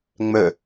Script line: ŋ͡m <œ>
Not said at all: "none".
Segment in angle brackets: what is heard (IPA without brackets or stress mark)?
œ